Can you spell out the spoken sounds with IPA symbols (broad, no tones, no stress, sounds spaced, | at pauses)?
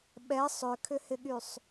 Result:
ɓ ɛ sˤ ʏ kʰ ʏ h ɪ ɠ y sˤ